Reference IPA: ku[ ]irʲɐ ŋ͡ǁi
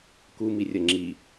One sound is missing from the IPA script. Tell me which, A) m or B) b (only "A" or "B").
A